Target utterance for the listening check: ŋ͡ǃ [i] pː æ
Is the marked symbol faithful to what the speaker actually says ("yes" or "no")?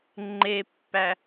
no